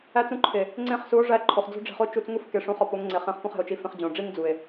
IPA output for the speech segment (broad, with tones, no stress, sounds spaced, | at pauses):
æ˦ t͡s ũ˦ ǃʰ e˨ | ŋ͡ǀ ẽ˦˨ χ s u˨˦ o̯ ʐ æ˦˨ ǃʰ o˨ χ d͡z o̤˦ ɖ͡ʐ e̤˧ χ o˦ t͡ʃ u˧ t͡s ŋ u˦ f k e˧ ʂ ũ˧ χ ɒ˧ p o˨˦ ŋ ŋ͡ǀ e˨ χ ẽ˧ χ p õ˦ χ e̤˨ o̯ t͡ʃ i˧ f ẽ˧ χ d͡ʑ õ˨ ɖ͡ʐ i˦ ŋ d͡z u˨ e̯